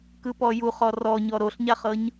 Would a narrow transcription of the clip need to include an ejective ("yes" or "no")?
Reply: no